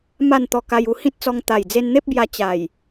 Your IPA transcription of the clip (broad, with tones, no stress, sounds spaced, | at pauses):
m a˥˧ n t̪ ɔ˧ k a˧ j u˧ h ĩ˦ t̚ t͡s ɔ˧ ŋ t̪ a˨˩ j d͡z e˧ n n̪ e˦ p̚ b j a˧ t͡ɕ a˨˩ j